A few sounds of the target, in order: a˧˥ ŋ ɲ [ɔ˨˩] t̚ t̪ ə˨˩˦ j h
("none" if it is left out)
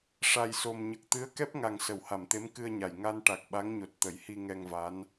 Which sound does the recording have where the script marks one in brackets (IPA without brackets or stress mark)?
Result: o˨˩